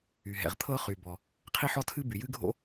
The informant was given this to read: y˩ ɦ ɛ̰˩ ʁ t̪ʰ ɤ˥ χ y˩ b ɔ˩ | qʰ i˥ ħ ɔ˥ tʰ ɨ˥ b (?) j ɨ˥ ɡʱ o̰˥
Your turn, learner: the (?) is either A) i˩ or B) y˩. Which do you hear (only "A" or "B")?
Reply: B